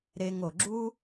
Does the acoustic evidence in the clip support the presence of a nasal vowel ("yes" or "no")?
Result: no